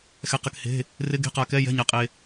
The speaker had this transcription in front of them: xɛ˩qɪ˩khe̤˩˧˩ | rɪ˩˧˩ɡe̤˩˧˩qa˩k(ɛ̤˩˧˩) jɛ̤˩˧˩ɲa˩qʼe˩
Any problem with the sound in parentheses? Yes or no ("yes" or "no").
yes